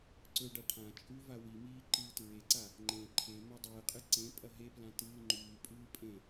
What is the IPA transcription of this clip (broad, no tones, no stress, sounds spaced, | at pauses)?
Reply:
ǀ ɵ ɖ a ʈʰ ã t͡ʃʼ ʉ v a w i m iː ǃ ɨː t ɹ e ǀ a | ŋ͡ǃ ẽ ǃʰ e m a dˤ ɨː qʼ ɨ ǀ ẽ pʼ ɐ ɦ e p l ã t ɨː ŋ͡ǃ ʉː pʼ ɨː pʼ ẽ